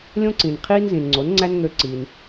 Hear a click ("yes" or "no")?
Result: yes